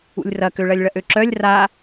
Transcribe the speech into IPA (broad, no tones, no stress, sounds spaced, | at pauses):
ṵ lʲ r ɐ k ø ɭ ɐ lʲ ɭ ɐ ʔ ø ǁ œ lʲ r a